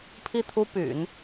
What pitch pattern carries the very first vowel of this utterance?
falling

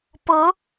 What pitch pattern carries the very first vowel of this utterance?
rising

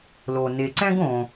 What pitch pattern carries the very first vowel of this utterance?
low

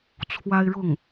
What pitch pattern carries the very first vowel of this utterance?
high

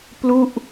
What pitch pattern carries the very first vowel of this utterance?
falling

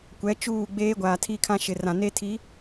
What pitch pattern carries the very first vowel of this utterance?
rising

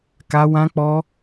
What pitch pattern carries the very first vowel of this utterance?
high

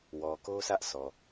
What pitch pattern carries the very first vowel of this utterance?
low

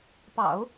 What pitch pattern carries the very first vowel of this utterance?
low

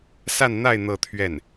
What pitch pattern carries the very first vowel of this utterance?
falling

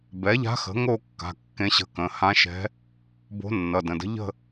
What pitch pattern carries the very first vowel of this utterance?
rising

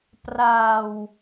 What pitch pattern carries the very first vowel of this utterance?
low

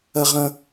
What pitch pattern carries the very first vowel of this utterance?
high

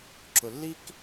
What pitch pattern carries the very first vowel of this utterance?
low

